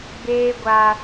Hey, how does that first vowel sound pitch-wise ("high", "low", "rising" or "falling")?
high